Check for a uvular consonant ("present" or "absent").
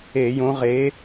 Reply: present